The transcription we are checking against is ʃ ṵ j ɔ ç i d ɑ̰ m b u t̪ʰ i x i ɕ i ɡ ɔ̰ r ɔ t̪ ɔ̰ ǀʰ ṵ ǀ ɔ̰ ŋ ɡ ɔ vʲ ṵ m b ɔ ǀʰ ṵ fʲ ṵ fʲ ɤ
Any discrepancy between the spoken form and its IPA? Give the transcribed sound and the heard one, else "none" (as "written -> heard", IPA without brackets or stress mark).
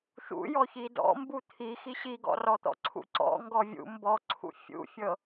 ɑ̰ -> ɔ̰